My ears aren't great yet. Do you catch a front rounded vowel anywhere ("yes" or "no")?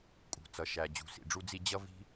no